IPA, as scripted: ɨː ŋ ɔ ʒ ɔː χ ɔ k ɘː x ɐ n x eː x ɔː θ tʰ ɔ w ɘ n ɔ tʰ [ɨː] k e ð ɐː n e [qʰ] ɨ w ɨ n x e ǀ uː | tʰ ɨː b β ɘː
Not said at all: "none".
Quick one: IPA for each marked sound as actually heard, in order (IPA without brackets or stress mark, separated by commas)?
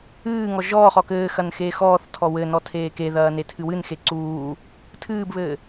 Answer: eː, tʰ